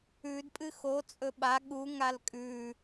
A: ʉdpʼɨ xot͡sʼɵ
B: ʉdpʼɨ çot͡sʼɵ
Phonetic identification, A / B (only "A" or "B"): A